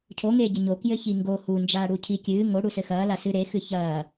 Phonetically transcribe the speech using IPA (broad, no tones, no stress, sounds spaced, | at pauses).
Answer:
cʰ o ŋ eː ɟ ɘ ɲ o k j ɘ ç i ŋ ɡ o h u n d͡ʒ aː ɽ u cʰ i kʲ ɨː ŋ o ɽ u s ɘ x ɐː l a s ɨ ɾ e x ɨ ç ɐː